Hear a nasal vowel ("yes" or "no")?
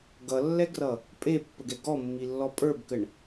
no